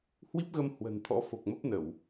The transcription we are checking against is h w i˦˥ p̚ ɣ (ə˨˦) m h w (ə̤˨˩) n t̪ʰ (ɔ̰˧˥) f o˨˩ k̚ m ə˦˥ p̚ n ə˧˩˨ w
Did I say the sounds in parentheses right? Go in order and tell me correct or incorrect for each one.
incorrect, correct, correct

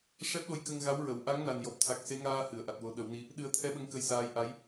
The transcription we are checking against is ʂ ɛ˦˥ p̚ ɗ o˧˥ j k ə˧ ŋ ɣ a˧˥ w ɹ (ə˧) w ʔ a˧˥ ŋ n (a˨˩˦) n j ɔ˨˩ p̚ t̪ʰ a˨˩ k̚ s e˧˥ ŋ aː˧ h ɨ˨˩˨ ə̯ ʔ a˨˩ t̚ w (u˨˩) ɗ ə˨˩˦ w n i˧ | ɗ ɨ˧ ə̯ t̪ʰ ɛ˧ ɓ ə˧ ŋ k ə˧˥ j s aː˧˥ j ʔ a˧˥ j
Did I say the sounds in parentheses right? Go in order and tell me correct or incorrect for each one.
incorrect, incorrect, incorrect

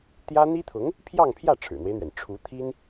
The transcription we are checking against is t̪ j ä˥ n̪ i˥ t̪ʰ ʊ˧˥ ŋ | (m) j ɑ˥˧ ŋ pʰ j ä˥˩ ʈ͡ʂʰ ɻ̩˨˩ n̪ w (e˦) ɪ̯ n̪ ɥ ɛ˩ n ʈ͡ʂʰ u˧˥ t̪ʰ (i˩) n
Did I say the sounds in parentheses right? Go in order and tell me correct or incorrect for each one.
incorrect, correct, incorrect

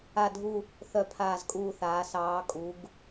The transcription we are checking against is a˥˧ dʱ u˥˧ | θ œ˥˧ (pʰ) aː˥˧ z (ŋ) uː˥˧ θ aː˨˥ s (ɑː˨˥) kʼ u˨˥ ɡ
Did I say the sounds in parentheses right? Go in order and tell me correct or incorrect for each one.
correct, incorrect, correct

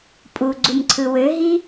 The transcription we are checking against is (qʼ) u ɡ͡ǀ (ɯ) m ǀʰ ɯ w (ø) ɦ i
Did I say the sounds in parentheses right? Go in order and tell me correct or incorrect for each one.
incorrect, incorrect, correct

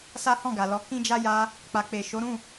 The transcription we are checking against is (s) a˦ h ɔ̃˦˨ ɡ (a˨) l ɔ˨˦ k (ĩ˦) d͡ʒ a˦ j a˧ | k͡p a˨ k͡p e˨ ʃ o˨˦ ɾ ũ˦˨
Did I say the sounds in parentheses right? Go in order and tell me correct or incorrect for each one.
correct, correct, correct

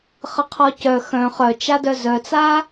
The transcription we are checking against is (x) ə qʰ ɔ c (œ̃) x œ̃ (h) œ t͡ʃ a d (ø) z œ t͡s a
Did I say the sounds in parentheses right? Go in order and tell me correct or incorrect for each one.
incorrect, incorrect, incorrect, incorrect

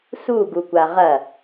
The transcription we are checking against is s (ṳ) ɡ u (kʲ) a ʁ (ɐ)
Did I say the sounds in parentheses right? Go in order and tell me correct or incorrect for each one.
incorrect, incorrect, correct

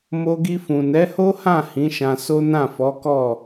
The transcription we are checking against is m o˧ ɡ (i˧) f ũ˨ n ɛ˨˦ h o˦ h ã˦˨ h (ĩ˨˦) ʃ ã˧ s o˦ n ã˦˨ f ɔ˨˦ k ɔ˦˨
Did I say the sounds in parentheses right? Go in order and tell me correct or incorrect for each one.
correct, correct

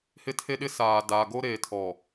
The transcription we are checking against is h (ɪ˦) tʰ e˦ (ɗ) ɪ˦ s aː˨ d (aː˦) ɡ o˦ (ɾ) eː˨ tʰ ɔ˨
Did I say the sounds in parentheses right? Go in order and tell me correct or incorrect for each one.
correct, correct, incorrect, correct

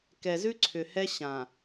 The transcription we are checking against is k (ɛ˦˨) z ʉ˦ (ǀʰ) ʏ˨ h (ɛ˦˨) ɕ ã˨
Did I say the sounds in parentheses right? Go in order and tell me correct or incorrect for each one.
incorrect, correct, incorrect

